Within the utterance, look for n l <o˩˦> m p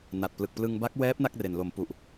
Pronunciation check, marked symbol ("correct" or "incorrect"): correct